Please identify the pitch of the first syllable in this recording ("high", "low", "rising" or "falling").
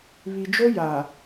low